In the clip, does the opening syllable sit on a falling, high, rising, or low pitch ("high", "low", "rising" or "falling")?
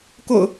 low